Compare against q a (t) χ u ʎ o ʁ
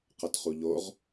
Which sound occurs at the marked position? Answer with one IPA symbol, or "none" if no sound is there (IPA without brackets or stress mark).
t